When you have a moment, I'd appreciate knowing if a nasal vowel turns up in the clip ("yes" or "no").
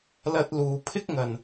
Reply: no